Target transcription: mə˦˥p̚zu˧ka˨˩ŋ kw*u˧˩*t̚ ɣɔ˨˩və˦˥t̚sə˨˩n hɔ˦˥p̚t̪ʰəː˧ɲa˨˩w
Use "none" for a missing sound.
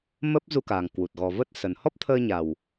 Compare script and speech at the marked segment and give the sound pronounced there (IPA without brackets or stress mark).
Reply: u˨˩